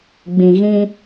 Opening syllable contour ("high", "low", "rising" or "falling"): low